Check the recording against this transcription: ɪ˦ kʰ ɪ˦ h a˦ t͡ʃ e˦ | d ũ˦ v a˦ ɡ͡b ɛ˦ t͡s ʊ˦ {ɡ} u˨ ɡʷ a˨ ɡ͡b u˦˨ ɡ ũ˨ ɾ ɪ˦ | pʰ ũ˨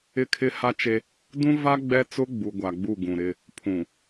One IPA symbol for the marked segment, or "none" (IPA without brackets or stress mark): ɡ͡b